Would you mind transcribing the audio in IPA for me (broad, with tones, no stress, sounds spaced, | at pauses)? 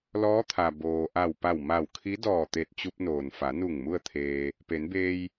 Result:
l ɔː˧˥ t̪ʰ a˩ b oː˩ ʔ a˧˩ w p a˧˩ w m a˧˩ w kʰ i˧˥ d ɔː˧˩ t̪ e˧˩ t̚ t͡ɕ u˧ p̚ n oː˩ n f a˩˧ n u˧˩ ŋ m u˥˨ ə̯ t̪ʰ eː˧ | p e˩˧ n b eː˧ j